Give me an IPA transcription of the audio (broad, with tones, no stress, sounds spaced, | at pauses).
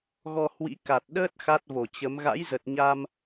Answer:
ɣ ɔ˧ h w ḭ˧˥ k a˨˩ t̚ ɗ əː˦˥ t̚ x a˦˥ t̚ v o˧˩ t͡ɕ ə˨˦ m ɣ a̰˧˥ j z ə˨˩ t̚ ɲ a˧ m